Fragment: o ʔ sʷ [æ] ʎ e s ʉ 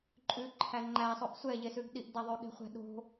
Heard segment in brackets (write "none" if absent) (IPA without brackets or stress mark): ɛ